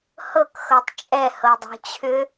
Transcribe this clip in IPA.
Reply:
h ɤ k x ɤ tˤ t͡ʃʼ ɛ h ɤ dˤ o̤ t͡ɕʰ ʏ

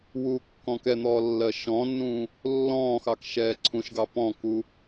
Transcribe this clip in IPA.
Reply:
w uː kː ɔ̃ k ɛ n̪ ɔː lː ɜ ʃ ɔ̃ nː ũː | lː ɔ̃ː x ɑ k ʃ ɛː ǀʰ ũ ʃ ɡ ɑ p ɔ̃ k u

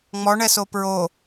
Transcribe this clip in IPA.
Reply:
ŋ͡m ɔ ɳ ɛ s o p ɹ o

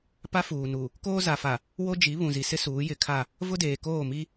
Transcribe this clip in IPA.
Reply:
p a˦ f uː˨ n u˨ | k oː˦ z a˨ f a˨ | w o˦ d͡ʒ i˨˦ β ũ˨ z i˨ s ɪ˦ s uː˨˦ j ɪ˨ kʰ a˦˨ | v ʊ˦ d eː˨ k oː˦˨ m i˦

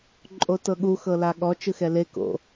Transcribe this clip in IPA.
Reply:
ǃʼ o t ɤ ɠ u x ɤ l a ɠ ɔ t͡ʃ ɯ x ɛ l e k o̰

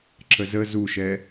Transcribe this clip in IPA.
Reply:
ǁ ə z ə z u ʃ ɛ

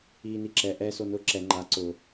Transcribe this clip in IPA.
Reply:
iː n i ǁ ɛ ʔ ɛ s o n ʊ ǁ ɛ ŋ͡ǃ a ǀ ʊ

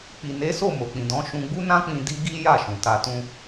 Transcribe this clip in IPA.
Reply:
k͡p i˨ n e˨˦ s o˦˨ m o˨ k͡p ĩ˨ d ɔ̃˨˦ ʃ ũ˧ ɡ͡b u˦ n ã˦ k͡p ĩ˧ d i˦ ɡ i˦ j a˦˨ ʃ ũ˨ t a˧ t ũ˦

